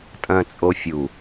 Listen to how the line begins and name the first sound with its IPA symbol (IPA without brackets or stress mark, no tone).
tʼ